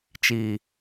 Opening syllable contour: low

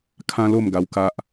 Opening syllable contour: high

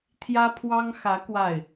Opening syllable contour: high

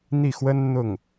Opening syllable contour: falling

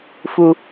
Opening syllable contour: low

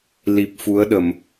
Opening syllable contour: low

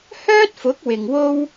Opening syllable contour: high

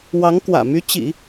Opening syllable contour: rising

